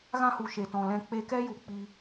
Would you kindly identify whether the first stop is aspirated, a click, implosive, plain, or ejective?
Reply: plain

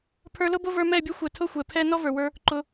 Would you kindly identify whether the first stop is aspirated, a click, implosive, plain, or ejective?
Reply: aspirated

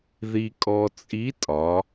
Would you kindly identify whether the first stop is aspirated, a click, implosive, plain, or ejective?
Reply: ejective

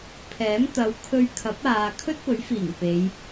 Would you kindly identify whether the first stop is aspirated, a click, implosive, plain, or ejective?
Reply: aspirated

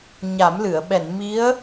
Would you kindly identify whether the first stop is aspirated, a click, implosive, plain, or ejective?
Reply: implosive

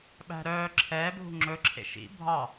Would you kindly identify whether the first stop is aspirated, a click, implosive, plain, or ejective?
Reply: implosive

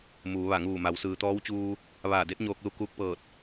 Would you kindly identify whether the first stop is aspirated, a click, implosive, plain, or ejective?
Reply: plain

